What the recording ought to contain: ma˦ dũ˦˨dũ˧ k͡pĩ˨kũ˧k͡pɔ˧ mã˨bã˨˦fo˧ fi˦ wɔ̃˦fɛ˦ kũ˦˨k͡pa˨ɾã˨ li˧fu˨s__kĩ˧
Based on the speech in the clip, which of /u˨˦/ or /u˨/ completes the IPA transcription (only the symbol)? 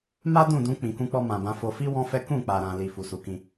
u˨˦